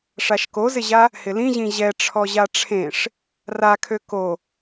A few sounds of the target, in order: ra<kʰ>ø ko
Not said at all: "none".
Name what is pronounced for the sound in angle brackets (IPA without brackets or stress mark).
kʰ